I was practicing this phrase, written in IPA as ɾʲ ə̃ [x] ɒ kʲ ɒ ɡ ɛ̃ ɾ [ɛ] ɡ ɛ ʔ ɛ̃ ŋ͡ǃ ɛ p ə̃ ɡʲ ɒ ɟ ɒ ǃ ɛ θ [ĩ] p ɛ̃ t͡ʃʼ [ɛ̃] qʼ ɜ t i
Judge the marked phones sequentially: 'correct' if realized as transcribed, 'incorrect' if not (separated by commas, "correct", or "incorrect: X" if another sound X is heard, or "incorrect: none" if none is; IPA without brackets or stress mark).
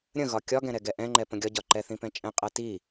incorrect: ɣ, correct, correct, correct